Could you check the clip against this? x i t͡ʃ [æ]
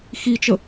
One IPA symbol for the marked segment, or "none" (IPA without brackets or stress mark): ə